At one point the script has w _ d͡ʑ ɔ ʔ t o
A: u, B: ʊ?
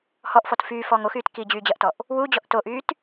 A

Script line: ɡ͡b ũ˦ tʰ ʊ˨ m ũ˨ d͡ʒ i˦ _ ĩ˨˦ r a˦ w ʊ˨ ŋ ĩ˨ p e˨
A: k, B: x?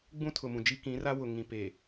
A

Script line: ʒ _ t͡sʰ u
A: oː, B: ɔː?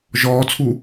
B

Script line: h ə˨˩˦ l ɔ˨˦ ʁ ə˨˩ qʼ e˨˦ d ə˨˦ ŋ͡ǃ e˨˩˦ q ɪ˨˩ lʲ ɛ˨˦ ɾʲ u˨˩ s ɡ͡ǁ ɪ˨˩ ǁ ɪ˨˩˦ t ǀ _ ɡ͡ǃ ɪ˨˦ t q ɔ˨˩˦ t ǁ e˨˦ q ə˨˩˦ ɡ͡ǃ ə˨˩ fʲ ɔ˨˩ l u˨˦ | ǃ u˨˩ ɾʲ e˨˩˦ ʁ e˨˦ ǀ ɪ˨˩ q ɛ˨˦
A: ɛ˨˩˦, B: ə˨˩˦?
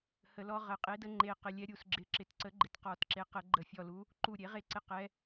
B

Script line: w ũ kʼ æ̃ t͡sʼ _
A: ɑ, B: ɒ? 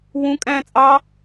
A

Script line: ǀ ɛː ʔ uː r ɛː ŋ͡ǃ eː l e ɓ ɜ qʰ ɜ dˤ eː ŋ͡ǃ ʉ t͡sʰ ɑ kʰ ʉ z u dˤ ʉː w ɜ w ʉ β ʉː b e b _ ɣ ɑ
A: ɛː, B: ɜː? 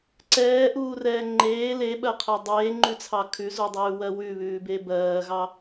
B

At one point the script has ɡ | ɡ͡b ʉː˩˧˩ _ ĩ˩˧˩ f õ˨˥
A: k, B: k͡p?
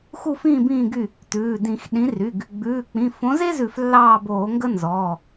B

